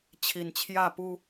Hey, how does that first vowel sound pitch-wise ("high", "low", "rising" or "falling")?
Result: low